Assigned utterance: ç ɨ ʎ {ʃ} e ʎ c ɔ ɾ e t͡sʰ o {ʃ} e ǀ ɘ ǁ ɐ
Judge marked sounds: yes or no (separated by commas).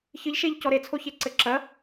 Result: yes, no